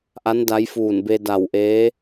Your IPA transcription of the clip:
ʔ a˧˥ n d a˧˥ j f uː˧˩ n b e˧ d a˧˩ w ʔ eː˧˥

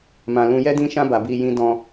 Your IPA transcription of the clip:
m ã˧ l ũ˧ j ɛ˦ d ĩ˦ ʃ ã˦ b a˧ b i˧ j ĩ˦ d ɔ̃˧

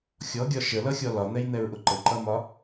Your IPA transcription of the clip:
xʲ ɔ ɡʲ ɒ ʃ ə l ʌ xʲ ɔ l ɒ n̪ ɛ j n̪ ɛ ɹ ʔ ʊ ǃ ə ǃ ʌ m ɒ

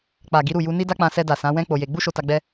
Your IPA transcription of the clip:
k͡p a˨ ɡ i˨˦ ɾ u˦˨ j u˧ n i˦ d a˦ k͡p ã˧ s ɛ˧ d a˨ s ã˨˦ w ɛ̃˦ k͡p o˧ j e˧ ɡ͡b u˦ ʃ o˧ t a˧ ɡ͡b ɛ˦

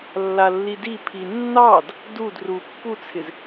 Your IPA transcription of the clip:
lː a lː i d i pʰ i nː ɑ d | d u d r u pː u t͡sʰ ɪ z

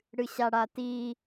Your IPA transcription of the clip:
ɽ ɨ ɕ a ɽ a t i

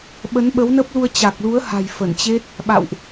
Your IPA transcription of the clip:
ɓ ə˨˦ n ɓ ə˨˦ w n ə˦˥ p̚ l u˧ ə̯ t͡ɕ a˨˩ k̚ l u˨˦ ə̯ h a̤˨˩ j f ə˧˩ n t͡ɕ e˦˥ t̚ | ɓ a̰˧˨ w ʔ

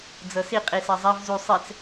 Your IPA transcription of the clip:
d͡z ɤ s i qʼ i s a zˤ a v z u sˤ ɛ t͡s

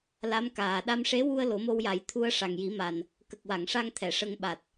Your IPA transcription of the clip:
l a˧˥ m k aː˨˩ ɗ a˧ m ʂ e˧˥ w u˧ ə̯ l o˨˩˦ m o˧ w j a˨˩˦ j t̪ʰ u˧ ə̯ ʂ a˨˩ ŋ j i˨˩˦ m a˨˩ n | k ə˨˩ k̚ w a˨˩˨ ŋ ʂ a˧ ŋ t̪ʰ ɛ˨˩˨ ʂ ə˧ ŋ ɓ a˨˩ t̚

